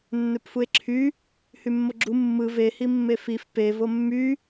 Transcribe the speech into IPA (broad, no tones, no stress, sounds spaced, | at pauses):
nː ø p f u e̯ ǁʰ y | h y mː o ɡ͡ǁ u mː ɯ v e h i mː e f i f p e v o mː y